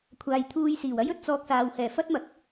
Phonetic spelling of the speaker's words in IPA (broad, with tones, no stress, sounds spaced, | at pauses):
kʷʰ aː˨ j t̪ʰ uː˧ j s iː˨˩ w ɐ˥ j ɵ˨ t̚ t͡s ɔː˧ k̚ s aː˨ w h ɛː˨˩ f ɐ˥ t̚ m ɐ˨˥ k̚